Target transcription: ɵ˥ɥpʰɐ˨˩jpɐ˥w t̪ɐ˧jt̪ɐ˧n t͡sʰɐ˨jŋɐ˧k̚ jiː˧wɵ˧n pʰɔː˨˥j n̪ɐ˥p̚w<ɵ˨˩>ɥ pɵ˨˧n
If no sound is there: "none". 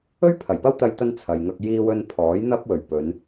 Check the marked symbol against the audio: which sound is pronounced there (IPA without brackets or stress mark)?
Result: ɵ˨˩